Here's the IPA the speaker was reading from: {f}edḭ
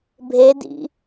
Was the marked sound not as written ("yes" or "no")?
yes